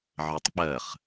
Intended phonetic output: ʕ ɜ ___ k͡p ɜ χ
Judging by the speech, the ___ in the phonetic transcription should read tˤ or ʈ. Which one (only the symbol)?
tˤ